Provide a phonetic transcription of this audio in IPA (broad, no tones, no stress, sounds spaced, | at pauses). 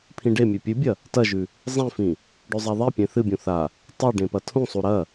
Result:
pʰ ĩ ɖ e mʲ ʉ pʲ ʉ bʲ ɐ | t ɐ ʒ ʉ | zˤ ẽ f ĩ | ɖ ɵ zˤ a ðˤ i pʲ ẽ θ ɨ bʲ ũ θ a | tˤ ɨ ɖ ẽ p ɐ tʰ ũ sˤ u ɾ ɐ